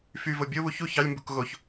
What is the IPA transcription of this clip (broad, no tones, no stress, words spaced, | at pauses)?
fyvo bʲoβu çu çɑlʲmbṳk ɣoç